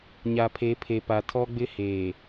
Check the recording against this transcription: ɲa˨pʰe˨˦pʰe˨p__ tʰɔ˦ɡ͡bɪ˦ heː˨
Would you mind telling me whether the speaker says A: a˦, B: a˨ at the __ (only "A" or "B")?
B